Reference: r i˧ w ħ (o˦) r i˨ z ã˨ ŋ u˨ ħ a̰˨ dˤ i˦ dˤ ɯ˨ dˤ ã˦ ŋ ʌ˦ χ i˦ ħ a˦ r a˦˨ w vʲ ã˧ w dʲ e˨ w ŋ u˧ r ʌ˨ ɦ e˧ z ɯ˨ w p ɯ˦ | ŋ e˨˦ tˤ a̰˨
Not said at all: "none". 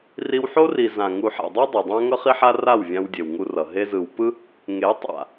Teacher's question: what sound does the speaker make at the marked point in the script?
o˦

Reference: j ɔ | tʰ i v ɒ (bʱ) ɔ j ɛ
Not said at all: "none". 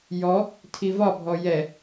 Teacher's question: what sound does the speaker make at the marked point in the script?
bʱ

